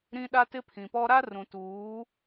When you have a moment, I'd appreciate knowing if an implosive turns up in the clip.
yes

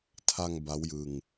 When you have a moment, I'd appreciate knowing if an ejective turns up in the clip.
no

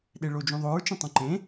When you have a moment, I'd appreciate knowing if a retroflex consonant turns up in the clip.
yes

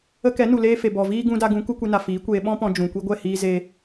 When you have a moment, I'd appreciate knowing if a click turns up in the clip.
no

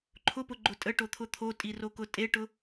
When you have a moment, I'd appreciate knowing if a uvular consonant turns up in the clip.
no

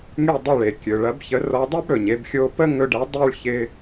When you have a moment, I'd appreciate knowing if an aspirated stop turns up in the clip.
no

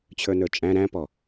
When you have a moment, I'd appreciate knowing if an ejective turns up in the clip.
yes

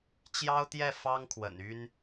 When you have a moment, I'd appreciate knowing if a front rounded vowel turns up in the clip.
yes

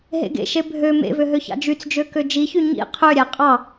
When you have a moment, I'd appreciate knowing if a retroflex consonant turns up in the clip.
no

